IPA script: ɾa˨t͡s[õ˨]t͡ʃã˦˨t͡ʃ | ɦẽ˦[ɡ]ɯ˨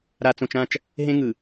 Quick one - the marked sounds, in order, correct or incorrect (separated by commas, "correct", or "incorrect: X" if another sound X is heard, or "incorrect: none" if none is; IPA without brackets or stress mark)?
correct, incorrect: ŋ